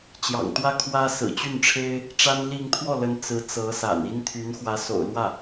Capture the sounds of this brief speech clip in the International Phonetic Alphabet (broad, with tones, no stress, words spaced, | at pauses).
t͡ɕjɑ̰˨˩ŋt̪wä˥˩kʰwä˥ sɹ̩˨˩t͡ɕy˥˩nʈ͡ʂʰe˥ɪ̯ | ʈ͡ʂa˥nli˥˧ŋ t̪ʰwɔ˥˩lə˧˥n t͡sɹ̩˧˥ t͡sɤ˧˥sa̰˨˩ni˥n t̪ʰy˧˥nxwä˧˥so̰˨˩ʊ̯lwä˥˩